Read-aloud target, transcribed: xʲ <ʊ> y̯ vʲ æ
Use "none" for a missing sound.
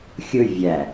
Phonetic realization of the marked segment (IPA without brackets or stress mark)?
ʊ